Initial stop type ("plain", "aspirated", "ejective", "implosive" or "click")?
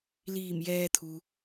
aspirated